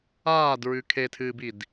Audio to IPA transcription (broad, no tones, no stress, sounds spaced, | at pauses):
aː d ɹ ʉ kʰ e tʰ ɨː b i d